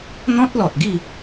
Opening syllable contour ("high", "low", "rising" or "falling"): high